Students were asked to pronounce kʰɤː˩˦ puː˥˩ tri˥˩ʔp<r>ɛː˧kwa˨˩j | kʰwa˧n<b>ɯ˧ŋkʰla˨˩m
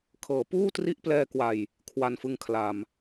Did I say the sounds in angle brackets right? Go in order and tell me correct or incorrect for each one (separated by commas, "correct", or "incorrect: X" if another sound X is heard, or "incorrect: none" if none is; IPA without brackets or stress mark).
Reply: incorrect: l, incorrect: f